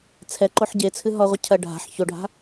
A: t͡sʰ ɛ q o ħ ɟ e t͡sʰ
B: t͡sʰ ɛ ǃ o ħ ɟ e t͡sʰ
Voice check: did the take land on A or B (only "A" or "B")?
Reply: B